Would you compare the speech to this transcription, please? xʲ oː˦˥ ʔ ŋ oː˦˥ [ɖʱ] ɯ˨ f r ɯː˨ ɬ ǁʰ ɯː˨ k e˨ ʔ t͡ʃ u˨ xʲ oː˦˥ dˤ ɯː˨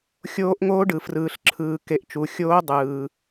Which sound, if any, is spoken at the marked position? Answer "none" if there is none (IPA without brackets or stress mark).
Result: ɖ